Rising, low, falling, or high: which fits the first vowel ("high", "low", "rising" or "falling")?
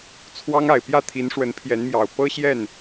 high